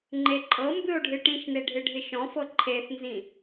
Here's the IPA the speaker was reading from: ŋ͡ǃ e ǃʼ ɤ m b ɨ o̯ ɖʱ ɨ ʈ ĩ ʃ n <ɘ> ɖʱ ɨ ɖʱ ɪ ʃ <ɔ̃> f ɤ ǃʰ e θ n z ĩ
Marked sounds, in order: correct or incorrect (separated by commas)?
incorrect, correct